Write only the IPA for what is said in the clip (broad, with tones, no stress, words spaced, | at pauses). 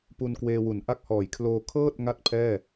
pu˧n kweː˧wu˩˦nʔa˥˩k̚hɔː˨˩j kʰloː˧ kʰɤː˥˩t̚ ŋa˥˩t̚pʰɛː˥˩